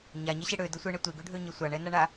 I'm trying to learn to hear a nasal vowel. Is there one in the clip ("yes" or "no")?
no